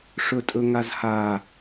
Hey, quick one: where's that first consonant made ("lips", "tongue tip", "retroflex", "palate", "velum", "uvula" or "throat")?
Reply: retroflex